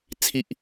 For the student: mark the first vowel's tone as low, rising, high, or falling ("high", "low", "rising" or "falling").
low